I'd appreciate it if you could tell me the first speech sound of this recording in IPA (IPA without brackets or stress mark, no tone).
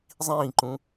zˤ